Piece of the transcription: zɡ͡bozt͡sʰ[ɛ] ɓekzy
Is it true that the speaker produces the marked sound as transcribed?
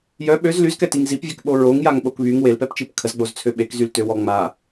no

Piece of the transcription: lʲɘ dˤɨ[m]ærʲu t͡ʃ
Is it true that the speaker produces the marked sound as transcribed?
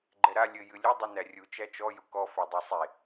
no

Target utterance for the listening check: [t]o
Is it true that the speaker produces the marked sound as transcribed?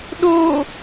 no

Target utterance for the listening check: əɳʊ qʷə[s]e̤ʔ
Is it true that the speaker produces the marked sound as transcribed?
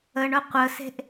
yes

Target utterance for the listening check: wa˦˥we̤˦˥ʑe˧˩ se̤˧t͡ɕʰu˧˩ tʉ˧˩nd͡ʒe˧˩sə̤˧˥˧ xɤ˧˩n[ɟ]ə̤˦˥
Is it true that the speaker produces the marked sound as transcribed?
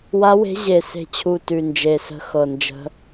no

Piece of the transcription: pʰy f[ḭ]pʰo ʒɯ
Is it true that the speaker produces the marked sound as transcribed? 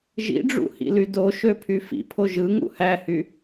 yes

